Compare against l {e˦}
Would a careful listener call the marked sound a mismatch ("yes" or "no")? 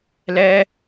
yes